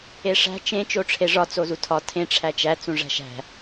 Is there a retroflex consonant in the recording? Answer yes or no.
yes